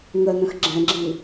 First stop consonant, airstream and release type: click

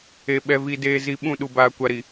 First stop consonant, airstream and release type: implosive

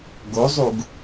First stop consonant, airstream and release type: plain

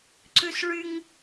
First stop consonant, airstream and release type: click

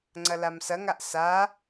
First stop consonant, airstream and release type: click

